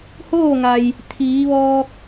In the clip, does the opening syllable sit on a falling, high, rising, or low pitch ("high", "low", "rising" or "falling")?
falling